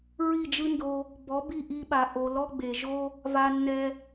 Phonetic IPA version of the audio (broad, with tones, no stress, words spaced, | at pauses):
ɹi˦˨d͡ʒɯ˦ndo˧ | bɔ˨˦bi˦˨ʔi˧ɓa˨ ʔo˧ lɔ˦ɡ͡be˨ʒo˦ | va˧nːɛ˧